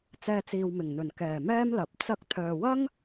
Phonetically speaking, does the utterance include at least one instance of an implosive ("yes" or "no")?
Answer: no